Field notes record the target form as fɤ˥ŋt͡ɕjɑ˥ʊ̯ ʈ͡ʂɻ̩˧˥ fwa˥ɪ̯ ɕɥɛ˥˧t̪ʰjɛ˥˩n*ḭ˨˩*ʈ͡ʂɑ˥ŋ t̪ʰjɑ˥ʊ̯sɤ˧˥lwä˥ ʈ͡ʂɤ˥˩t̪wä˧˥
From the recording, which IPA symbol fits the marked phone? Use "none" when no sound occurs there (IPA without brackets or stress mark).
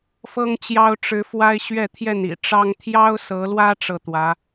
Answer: ḭ˨˩